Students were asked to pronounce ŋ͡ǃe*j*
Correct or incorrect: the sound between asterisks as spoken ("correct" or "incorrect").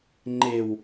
incorrect